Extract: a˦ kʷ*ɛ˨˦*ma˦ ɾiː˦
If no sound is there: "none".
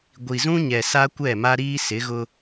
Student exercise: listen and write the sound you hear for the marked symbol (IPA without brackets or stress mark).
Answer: ɛ˦˨